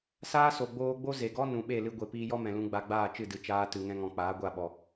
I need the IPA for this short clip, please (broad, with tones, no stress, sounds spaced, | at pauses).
s aː˦ s o˨ ɡ͡b oː˧ ɡ͡b o˦ z e˨ ɡ ɔ˦ n ũ˨ ɓ e˦˨ l ɨ˧ ɡʷ e˨ p iː˧ j ɔ˦ m ɛ̃˨ l ũ˧ ɡ͡b a˧ ɡ͡b aː˦˨ t͡ʃ ɨ˦˨ d ɨ˨ t͡ʃ aː˧ t ɨ˨ ŋ ɛ̃˧ ŋ ɔ̃˨ k͡p aː˨˦ ɡʷ a˦˨ ɓ ɔ˨